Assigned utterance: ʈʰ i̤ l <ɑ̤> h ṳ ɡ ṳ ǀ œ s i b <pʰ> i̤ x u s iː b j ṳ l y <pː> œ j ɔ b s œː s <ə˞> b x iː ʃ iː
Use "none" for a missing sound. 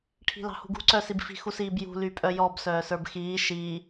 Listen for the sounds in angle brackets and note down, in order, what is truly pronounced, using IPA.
ɑ̤, f, pʼ, ə˞

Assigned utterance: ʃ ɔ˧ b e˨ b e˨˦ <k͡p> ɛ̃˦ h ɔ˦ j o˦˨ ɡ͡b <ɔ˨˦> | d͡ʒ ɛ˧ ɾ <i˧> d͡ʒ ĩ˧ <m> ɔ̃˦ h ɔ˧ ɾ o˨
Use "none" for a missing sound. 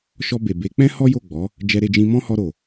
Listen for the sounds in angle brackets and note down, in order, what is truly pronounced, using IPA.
k͡p, ɔ˨˦, e˧, m

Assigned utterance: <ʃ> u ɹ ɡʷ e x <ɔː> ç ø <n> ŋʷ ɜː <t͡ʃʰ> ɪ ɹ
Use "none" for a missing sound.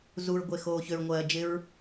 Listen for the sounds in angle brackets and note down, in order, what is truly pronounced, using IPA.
z, oː, ɹ, d͡ʒ

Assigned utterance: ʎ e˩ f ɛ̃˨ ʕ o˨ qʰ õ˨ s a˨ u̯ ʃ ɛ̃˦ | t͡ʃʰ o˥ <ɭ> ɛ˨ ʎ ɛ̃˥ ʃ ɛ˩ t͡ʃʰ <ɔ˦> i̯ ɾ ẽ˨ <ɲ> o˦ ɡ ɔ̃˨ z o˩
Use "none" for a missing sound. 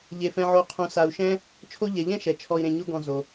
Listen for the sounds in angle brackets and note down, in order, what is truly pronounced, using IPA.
ʎ, ɔ˨, ɲ

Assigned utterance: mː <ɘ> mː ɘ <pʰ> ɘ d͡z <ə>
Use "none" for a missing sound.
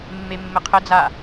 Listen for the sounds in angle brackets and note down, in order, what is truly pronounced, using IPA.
e, qʰ, a

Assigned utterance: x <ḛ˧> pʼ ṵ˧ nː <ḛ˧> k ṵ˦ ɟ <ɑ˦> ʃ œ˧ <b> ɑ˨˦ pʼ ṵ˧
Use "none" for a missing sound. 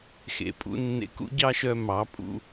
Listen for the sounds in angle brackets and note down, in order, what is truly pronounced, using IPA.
ḛ˨, ḛ˧, ɑ˦, m

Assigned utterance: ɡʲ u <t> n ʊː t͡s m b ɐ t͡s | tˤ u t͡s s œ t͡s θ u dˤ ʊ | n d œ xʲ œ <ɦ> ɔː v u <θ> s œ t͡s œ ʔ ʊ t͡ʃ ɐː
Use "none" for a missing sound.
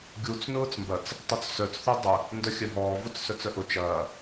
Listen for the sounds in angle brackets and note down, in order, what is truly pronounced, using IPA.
t͡s, ɦ, t͡s

